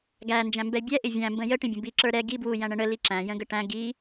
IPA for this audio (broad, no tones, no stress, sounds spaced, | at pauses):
ɡ æ n d͡ʒ æ̃ m b ɛ bʲ ɛ ʔ ɪ vʲ æ̃ m b ə̃ j ə ʈ ĩ bʲ ə̃ b i ǁ ə˞ ɾ ɛ ɡ i b w u j æ̃ ɳ ə̃ ɳ ə l i ǁ æ̃ j ə̃ ɡ ə ʈ æ̃ ɡ i